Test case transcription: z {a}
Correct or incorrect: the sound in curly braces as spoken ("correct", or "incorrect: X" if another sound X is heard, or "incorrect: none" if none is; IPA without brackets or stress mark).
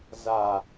correct